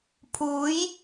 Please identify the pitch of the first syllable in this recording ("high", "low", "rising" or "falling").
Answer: rising